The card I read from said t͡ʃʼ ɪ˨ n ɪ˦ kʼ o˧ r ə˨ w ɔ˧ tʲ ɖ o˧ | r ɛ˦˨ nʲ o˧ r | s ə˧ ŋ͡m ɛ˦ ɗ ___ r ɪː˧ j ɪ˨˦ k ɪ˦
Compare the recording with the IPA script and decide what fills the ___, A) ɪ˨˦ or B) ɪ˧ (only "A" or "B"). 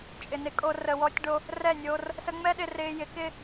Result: B